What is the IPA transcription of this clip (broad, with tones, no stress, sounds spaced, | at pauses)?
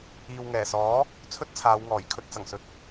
iː˨ w ŋ ɛː˨˩ s ɔː˨˥ | t͡sʰ ɵ˥ t̚ t͡sʰ aː˨˧ w ŋ ɔː˨˩ j kʰ ɵ˧ t̚ t͡s ɐ˨˩ ŋ s ɵ˨ t̚